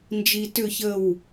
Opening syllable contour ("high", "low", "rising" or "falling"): high